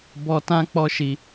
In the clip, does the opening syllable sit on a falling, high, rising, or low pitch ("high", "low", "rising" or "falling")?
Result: high